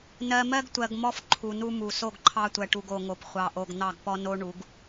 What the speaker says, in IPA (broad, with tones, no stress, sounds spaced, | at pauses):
n ɜ˨ m ɜ˦ ɡ tʷ ɜ˨ ɡ m ɔ˦ f ǃʰ u˨ n u˦ m u˨ s o˦˨ ɡ ǃʰ ɑ˦ tʷ ɜ˨ ʈ u˨ ɡ o˨ ŋ o˨ p χʷ ɑ˨ ʔ o˨ ɡ n̪ ɑ˦˨ ɡ p ɔ˦ n o˦ ɳ u˨˦ ɡ